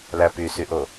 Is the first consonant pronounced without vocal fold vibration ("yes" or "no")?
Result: no